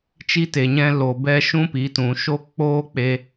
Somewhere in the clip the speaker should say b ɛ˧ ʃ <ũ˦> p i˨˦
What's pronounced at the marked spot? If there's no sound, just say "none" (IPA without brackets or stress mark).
ũ˦